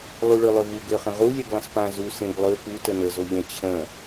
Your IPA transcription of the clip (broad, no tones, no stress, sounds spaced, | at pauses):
lˠ u ɭ ø lˠ ø v u ɡ ø χ ə̃ ʁ u lʲ e ɡ lˠ ə̃ s p ã z u s ẽ ɡ lˠ ø p u t ə n ə z o ʎ ə̃ t͡ɕʰ ə̃